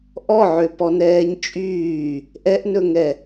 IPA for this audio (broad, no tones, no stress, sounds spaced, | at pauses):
ʔ ɔ ʕ ø p ɔ n ɛː ɲ t͡ʃʼ yː | ʔ ɛ ʔ n ɵ ŋ ɛ